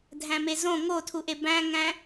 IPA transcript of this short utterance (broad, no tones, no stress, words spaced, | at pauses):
dʱæ̃mezõ ŋotʰuʔe bæ̃ŋæ̃